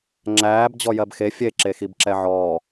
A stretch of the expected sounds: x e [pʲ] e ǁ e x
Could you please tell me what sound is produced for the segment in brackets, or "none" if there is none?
fʲ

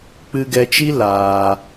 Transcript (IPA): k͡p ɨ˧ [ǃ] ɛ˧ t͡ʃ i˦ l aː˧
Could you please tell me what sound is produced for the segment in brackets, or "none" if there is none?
ɡ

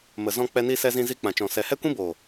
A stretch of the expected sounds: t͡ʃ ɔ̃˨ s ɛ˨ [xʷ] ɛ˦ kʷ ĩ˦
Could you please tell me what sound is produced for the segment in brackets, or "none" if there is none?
h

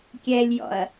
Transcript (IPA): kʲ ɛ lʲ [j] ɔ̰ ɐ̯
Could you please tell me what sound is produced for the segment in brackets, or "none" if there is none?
j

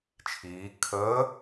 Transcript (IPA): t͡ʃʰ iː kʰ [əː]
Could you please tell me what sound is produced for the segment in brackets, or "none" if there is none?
əː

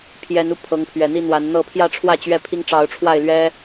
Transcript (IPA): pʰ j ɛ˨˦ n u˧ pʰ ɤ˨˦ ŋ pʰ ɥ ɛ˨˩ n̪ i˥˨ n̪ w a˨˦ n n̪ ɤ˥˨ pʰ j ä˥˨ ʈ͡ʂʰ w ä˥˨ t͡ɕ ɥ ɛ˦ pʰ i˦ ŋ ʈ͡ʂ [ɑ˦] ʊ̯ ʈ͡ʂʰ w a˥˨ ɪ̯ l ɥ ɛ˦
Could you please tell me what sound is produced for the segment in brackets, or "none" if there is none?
ɑ˨˦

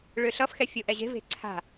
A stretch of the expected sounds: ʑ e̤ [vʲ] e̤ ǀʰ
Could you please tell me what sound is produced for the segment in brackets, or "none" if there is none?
v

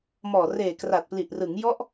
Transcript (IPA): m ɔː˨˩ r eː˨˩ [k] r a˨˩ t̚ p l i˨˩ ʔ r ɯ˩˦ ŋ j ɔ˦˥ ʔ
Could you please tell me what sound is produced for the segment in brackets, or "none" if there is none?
k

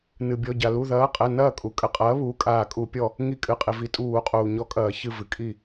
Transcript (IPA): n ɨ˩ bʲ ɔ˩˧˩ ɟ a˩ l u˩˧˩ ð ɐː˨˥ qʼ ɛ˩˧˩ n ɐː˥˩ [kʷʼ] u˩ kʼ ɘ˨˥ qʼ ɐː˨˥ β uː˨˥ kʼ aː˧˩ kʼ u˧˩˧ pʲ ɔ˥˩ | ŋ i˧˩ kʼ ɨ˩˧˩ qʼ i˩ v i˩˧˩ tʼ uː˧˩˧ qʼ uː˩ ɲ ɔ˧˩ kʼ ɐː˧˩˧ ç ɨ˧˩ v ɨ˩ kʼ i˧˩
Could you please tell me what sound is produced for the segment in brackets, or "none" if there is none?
kʼ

